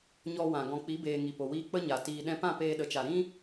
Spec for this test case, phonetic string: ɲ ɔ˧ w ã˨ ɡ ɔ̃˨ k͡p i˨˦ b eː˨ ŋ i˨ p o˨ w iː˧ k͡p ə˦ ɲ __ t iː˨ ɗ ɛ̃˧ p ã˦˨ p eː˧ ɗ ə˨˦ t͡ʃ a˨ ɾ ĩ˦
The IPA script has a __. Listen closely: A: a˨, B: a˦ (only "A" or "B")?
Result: A